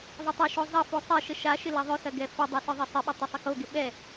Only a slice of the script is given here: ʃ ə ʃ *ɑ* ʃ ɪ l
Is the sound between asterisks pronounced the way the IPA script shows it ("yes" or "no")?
no